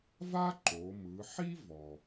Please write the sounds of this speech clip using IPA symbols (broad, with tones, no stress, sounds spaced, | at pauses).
v a˥ ǃ o˩˧ m ɯ˩˧ ħ i˥ v ɔ˩